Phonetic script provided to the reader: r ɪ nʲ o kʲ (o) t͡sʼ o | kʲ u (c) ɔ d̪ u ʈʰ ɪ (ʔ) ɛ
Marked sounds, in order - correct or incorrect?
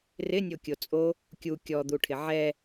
correct, incorrect: kʲ, incorrect: ʕ

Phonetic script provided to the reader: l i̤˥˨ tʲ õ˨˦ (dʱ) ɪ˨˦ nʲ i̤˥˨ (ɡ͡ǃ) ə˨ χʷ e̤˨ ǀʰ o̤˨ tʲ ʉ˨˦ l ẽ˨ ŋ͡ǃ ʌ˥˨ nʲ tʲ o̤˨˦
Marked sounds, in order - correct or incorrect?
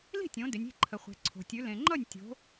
incorrect: d, incorrect: ǃʰ

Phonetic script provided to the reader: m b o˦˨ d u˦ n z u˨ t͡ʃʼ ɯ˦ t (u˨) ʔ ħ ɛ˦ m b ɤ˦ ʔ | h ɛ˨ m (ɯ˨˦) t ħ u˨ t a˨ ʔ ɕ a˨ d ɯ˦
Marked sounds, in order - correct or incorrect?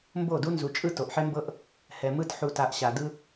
incorrect: o˨, incorrect: ɯ˦

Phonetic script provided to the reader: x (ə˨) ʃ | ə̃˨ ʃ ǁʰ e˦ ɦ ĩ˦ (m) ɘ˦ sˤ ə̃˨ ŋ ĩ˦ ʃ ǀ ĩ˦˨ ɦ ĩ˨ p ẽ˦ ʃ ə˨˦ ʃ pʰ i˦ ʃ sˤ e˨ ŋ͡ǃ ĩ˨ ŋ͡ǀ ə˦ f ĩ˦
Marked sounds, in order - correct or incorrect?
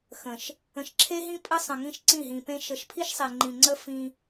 incorrect: ə̃˨, incorrect: pʼ

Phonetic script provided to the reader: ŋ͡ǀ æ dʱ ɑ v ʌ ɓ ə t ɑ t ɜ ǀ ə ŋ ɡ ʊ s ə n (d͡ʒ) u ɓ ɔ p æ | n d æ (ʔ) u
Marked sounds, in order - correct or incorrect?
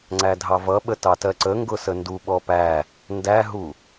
incorrect: d, incorrect: ɦ

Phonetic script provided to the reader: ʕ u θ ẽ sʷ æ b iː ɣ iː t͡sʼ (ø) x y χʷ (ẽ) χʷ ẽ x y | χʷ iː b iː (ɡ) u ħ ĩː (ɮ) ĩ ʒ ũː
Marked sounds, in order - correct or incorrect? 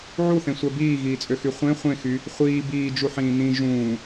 correct, correct, incorrect: d͡ʒ, incorrect: n

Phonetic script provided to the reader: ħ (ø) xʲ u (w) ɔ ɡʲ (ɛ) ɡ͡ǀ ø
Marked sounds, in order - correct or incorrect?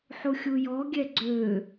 incorrect: u, incorrect: j, correct

